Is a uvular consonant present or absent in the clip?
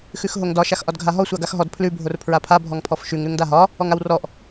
absent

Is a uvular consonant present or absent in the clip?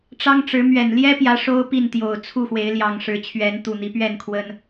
absent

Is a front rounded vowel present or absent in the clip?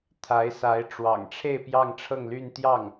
present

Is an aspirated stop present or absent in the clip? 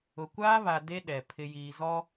present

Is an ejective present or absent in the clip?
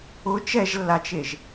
absent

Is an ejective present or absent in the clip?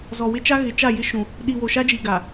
absent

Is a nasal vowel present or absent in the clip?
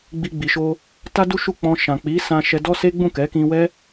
present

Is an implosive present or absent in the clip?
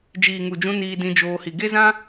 absent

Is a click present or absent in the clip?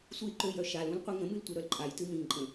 present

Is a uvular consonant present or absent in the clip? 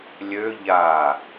absent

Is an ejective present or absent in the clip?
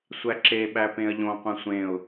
absent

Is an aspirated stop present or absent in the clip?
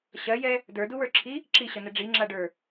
present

